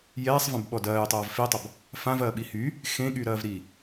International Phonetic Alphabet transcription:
j ɛː sˤ v ẽ b ɓ ɔ d ɐː j tˤ ɐː v f i tˤ ɐ b | f ã v ɐː ɓ i h y | x ẽ ɠ y ɾ ɐː v ɾ iː

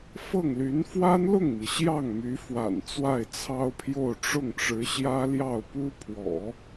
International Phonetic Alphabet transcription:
f ɤ˥˩ ŋ l y˧˥ n f w a˥ n l ʊ˥˩ ŋ m i˩ ɕ j ɑ˥˩ ŋ m y˧˥ f w a̰˨˩ n t͡s w a˥˩ ɪ̯ t͡sʰ ɑ˥ ʊ̯ pʰ j o˥˧ ʊ̯ ʈ͡ʂ ʊ˥˩ ŋ ʈ͡ʂ ɻ̩˧˥ ɕ j ä˥ l j ɑ˥˩ ʊ̯ p u˥ pʰ w ɔ̰˨˩˦

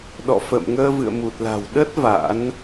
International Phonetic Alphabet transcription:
ɗ ɔ̰˧˨ f ə̰ː˧˨ m ŋ əː˧ v ɨ̰˧˨ ə̯ m u˨˩ t̚ l a̤˨˩ w ɗ ə˦˥ t̚ v a̰˧˥ n

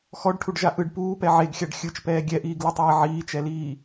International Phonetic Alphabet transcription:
x ɔ ɖ ʈʰ u ɖ ʒ a ʔ ɯ ɖ p uː p ɛ ʕ e ɡ xʲ a ɖ xʲ ɯ t͡ʃ p ɛː ɡʲ ɛ ʔ iː ɡ l ɯ tˤ eː ʕ iː t͡ʃ ɛ l iː

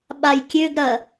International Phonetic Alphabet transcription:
ɓ a j kʲ ø ɡ ɾ ɐ

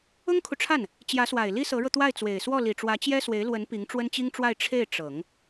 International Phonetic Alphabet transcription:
ʊ˥ ŋ kʰ u˨ ʈ͡ʂʰ a˥˩ n | t͡ɕ j ä˧˥ s w a˨˩ ɪ̯ l i˥ s ɤ˧˥ ɻ ɤ˧ t̪ w a˥˩ ɪ̯ t͡s w e˨˩ ɪ̯ s w ɔ˥˩ l i˨˩ ʈ͡ʂ w ä˧˥ t͡ɕ j ɛ˥ s w e˧˥ ɪ̯ l w ə˧˥ n p i˧˥ ŋ ʈ͡ʂ w ə˥ n t͡ɕ i˥ ŋ ʈ͡ʂ w a˥˧ ɪ̯ ʈ͡ʂʰ e˥˩ ɪ̯ ʈ͡ʂ ɤ˨˩˦ ŋ

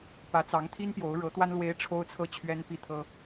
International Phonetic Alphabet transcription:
p ä˧˥ t͡s ɑ˧˥ ŋ t̪ʰ i˥ n p j o˧˥ ʊ̯ ɻ ɤ˧˥ t̪ w a˥ n l w e˥ ɪ̯ ʈ͡ʂʰ o˥ ʊ̯ t͡sʰ ɤ˥ t͡ɕʰ ɥ ɛ˥ n p i˥ t̪ʰ ɤ˥

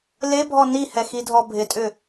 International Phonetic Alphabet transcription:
l e bʱ ɔ n i h ɛ x i dʱ ɔ bʱ ɪ tʼ ʏ

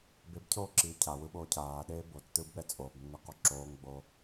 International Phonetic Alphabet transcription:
b e b cʰ oː ǁ iː cʰ a w ɯ ɓ oː cʰ aː ɗ eː b o tː ɯː b ɓ ɛ t͡sʼ oː b nː ɛ q o ǁ oː ŋ ɡ͡b o

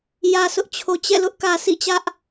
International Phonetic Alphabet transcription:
j ä˨ sʰ ʊ˦ ʔ t͡ɕʰ o˨ t͡ɕ ɛ̰˦˨ l ʊ˦ ʔ k ä˨ sʰ ḭ˦˨ t͡ɕ ä˦ ʔ

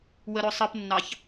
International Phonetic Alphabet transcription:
w ə ɾ ʊ sˤ ə p nː ɑ ç

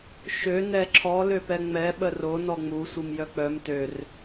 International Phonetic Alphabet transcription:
ʃ ø n ɛ ǁʰ ɔ l ø p ɛ ŋ͡m ɛ ɓ ə r o n ɔ ŋ͡m u sʷ i m j œ k͡p œ m t ø r

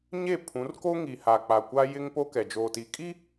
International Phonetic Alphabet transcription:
ɲ e˦˨ pʰ ũ˨˦ r k oː˦ ŋ i˨ h a˨ k͡p a˨ kʷ a˦ j ɪ˦ ŋ p o˦ k ɛ˨ d͡ʒ oː˨ t i˨ kʼ i˦

